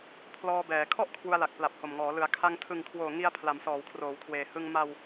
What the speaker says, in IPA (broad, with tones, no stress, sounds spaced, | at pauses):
pʰ l ɔː˧ b ɛː˩˦ kʰ ɔ˥˩ ʔ kʰ w u˧ a̯ l a˨˩ k̚ p l a˨˩ p̚ h o˨˩ m ŋ ɔː˩˦ l ɯ˩˦ a̯ kʰ a˧ ŋ tʰ ɯ˨˩ ŋ kʰ w oː˨˩ ŋ i˧ a̯ pʰ l a˩˦ m s ɔː˩˦ w kʰ r oː˩˦ w kʰ w eː˩˦ h ɯ˧ ŋ m a˧ w